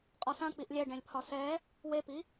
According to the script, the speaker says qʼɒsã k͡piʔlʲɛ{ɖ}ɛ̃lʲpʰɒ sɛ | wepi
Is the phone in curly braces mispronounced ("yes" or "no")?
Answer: no